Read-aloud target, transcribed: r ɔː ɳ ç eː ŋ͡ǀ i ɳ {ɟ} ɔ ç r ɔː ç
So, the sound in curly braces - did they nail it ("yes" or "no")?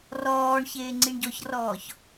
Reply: yes